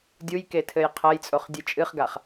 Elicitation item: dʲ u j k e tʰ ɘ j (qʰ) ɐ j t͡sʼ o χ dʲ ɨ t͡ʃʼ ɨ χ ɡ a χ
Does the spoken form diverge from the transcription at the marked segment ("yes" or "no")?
no